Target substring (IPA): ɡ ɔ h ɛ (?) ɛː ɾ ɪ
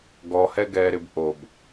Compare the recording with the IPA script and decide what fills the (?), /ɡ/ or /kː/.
ɡ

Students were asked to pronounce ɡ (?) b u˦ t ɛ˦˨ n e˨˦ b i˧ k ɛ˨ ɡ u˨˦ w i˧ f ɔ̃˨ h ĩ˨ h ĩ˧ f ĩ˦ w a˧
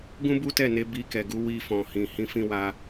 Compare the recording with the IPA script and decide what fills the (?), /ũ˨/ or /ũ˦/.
ũ˦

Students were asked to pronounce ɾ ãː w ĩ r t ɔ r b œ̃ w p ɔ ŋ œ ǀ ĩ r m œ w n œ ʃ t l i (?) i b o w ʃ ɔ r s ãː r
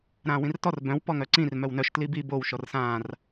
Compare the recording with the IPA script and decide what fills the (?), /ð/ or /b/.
b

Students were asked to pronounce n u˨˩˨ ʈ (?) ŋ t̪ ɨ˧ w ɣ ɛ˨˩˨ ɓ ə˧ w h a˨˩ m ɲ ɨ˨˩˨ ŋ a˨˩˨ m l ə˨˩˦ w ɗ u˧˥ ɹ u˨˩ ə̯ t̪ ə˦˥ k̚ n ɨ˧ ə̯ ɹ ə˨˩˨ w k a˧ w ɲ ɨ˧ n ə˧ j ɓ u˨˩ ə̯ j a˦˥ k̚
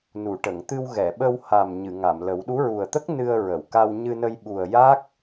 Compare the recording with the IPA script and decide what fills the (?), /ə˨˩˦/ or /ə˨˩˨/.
ə˨˩˨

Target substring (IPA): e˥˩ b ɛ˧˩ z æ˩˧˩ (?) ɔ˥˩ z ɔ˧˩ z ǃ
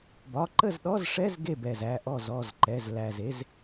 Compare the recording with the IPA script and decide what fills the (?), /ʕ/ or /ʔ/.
ʔ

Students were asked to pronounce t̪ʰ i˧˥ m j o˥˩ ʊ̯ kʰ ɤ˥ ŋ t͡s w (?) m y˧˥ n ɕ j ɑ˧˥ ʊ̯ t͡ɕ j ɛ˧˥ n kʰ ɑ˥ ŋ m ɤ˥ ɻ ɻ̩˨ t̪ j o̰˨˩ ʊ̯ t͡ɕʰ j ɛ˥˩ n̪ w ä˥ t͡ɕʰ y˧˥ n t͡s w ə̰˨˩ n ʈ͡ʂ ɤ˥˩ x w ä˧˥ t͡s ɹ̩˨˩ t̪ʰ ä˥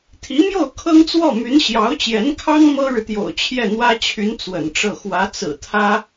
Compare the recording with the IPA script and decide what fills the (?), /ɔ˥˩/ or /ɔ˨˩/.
ɔ˥˩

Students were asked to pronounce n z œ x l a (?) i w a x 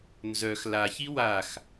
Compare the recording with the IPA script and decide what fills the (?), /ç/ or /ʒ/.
ç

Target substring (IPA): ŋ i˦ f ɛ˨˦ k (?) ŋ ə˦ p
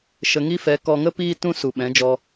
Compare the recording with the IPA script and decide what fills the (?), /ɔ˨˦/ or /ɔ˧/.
ɔ˧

